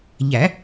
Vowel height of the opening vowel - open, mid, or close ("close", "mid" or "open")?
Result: open